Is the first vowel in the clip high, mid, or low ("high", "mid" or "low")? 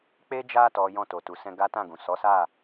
mid